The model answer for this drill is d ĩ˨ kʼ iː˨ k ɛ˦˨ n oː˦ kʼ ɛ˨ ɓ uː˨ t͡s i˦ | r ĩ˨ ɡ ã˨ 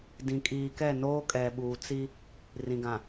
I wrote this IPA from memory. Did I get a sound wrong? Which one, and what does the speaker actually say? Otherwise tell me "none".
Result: none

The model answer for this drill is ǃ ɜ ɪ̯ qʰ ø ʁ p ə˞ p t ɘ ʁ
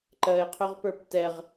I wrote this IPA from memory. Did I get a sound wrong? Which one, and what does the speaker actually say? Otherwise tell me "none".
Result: ɘ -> ɛ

